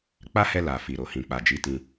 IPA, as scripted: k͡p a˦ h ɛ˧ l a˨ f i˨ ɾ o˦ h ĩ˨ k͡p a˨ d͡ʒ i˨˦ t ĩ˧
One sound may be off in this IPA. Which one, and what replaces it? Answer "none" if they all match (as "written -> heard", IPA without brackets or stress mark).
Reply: o˦ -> o˨